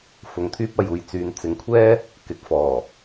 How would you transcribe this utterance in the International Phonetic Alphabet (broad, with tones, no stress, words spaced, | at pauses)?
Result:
fʊ˨˧ŋt̪ʰyː˥p̚ɐ˧j uː˨jt͡syː˨˧n t͡sɪ˨ŋkʷʰɛː˥ | kɪ˨k̚fɔː˨˩